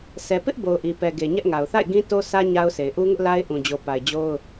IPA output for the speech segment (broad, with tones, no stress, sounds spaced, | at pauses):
sʰ ɛ˨ p ɪ˦ ʔ b o˨ ʊ̯ ʔ i˨ p ɛ˨ ɡ e˨ ɲ ɛ˦ ʔ ŋ a˨ ʊ̯ θ a̰˦˨ ɪ̯ ɡ ĩ˦ t o˦ sʰ ä˦ ɲ a˦ ʊ̯ sʰ e˨ ɪ̯ ʔ u˦ ŋ ʊ˦ ʔ l a˦ ɪ̯ ʔ ũ˨ d͡ʑ o˨ p a˨ ɪ̯ d͡ʑ o˦ ʊ̯